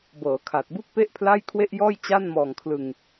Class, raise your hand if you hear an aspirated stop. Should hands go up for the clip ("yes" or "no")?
yes